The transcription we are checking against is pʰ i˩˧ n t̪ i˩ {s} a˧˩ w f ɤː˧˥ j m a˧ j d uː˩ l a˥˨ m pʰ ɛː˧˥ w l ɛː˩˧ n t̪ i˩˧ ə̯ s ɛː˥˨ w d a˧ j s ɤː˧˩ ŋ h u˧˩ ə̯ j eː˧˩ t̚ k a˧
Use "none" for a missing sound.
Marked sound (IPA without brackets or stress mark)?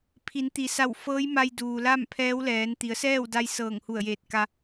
s